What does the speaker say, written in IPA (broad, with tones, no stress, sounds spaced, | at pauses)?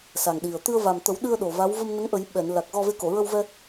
s a˨˩ ŋ ɗ i˨˩ ə̯ t̪ ɨ˧ ə̯ v a˨˩ m t̪ ə˨˩˦ w ɗ ɨ˧ ə̯ ɗ o˨˩ v a˧˥ w v ə˧ m n ə˧˥ ŋ ʔ ə˨˩˦ j ɓ ɛ˨˩˨ n l a˨˩ k̚ ɣ ɔ˧ v e˧˥ k o˨˩˨ ɹ ə˧ w v ɛ˧